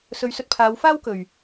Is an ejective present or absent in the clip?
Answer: absent